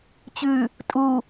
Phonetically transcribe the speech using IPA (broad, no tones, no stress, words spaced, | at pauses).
t͡ɕʉ | tʼu